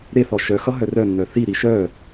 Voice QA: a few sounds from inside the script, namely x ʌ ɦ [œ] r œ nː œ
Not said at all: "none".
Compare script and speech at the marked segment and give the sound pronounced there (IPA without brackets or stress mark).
œ